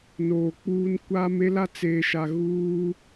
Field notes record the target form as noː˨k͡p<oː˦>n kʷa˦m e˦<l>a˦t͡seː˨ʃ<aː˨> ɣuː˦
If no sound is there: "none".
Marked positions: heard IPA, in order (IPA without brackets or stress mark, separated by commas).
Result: uː˦, l, a˨